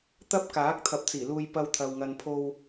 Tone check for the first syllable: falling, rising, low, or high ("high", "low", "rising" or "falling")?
high